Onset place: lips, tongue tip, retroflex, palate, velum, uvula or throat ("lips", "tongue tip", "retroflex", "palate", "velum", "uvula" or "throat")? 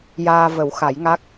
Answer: palate